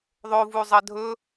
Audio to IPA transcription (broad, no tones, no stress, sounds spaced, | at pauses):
ðˤ o v u zˤ ɐ dʱ ɵ